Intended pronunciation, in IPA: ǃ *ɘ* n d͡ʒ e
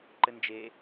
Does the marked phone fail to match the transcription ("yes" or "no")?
no